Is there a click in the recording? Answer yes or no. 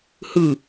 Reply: no